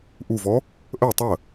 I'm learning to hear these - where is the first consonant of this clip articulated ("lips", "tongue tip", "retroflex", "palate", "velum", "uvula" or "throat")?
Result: throat